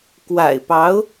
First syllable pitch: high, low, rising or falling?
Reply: low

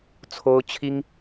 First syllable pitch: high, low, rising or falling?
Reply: high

